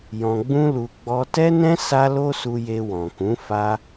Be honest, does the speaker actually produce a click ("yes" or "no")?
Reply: no